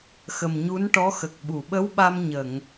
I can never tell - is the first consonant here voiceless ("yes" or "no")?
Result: yes